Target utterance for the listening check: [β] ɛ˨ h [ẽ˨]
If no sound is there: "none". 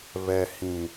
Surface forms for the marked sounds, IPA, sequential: β, ĩ˨

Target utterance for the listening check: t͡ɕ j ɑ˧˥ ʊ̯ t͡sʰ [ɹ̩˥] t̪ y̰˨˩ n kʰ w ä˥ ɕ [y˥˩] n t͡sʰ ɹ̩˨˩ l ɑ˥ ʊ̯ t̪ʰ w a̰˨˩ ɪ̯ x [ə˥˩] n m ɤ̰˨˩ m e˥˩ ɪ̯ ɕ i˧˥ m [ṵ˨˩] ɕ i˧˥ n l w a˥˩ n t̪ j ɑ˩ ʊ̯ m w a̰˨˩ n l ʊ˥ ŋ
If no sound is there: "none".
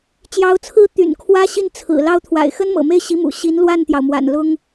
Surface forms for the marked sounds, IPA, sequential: ɹ̩˥, i˥˩, ə˥, ṵ˨˩

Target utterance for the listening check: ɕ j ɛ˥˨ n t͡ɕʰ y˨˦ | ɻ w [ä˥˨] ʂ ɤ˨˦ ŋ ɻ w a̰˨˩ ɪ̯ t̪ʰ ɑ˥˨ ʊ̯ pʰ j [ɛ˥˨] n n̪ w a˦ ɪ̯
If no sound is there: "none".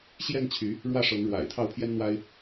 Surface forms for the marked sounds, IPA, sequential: ä˥˨, ɛ˦

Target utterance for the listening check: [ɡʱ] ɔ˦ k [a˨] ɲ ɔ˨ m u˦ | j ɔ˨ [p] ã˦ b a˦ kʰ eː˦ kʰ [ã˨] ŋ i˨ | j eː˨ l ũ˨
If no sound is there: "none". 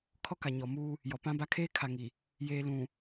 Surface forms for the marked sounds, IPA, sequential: kʰ, a˨, p, a˨

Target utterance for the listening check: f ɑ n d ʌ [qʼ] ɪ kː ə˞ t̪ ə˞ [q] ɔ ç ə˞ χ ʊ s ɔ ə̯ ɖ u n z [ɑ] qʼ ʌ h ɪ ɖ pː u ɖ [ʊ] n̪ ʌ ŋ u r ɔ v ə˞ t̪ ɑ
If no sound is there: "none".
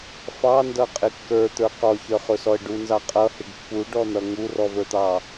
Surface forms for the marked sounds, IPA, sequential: qʼ, q, ɑ, ɔ

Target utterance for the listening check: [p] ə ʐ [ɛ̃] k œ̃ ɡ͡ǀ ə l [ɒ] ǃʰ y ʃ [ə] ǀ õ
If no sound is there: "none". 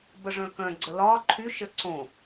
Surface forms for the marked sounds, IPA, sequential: b, œ̃, ɒ, ə

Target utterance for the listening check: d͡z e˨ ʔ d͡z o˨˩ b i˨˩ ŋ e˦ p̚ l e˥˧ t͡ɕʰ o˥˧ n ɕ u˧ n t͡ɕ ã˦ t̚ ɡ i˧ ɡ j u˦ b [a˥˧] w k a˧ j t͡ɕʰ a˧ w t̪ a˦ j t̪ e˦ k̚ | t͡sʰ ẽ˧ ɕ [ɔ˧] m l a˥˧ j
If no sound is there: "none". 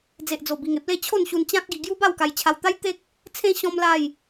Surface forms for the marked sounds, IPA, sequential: a˥˧, ɔ̃˧

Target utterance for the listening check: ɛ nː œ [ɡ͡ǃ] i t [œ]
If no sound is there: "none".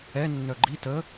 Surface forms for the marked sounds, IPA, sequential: ɡ͡ǃ, ə

